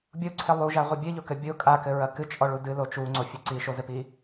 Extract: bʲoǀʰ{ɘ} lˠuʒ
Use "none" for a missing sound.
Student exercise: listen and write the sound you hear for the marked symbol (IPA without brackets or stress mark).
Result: e